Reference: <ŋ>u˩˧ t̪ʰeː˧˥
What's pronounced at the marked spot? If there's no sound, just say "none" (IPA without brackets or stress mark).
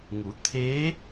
ŋ